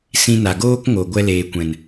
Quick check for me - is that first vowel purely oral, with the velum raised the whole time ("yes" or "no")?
no